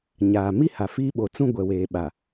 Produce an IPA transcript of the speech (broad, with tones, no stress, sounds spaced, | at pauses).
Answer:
ɲ aː˨ m i˦ h a˨ f iː˦ ɓ o˨ t͡s ũ˦ ɡʷ ɛ˨ w eː˨ ɓ a˨